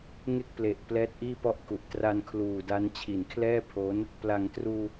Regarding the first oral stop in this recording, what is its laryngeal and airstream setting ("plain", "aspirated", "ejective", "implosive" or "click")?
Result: plain